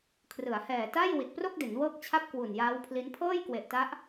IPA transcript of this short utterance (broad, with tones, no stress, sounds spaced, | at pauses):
kʰ r ɯ˩˦ a̯ h ɛː˨˩ t a˥˩ j w i˨˩ t̚ p r o˥˩ k̚ d e˩˦ n w ɤː˦˥ k̚ t͡ɕʰ a˥˩ p̚ k w u˨˩ n j aː˦˥ w pʰ l i˦˥ n pʰ ɤː˥˩ j k w e˨˩ ʔ t a˦˥ ʔ